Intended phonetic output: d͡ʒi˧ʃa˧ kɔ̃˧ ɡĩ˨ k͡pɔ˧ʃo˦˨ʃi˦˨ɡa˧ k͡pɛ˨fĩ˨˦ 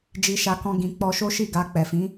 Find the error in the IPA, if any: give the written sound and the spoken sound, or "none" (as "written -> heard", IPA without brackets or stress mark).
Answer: o˦˨ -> o˦